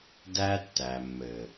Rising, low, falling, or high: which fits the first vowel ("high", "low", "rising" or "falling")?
high